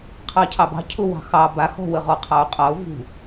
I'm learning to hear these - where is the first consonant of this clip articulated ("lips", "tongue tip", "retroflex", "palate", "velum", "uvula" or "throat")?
uvula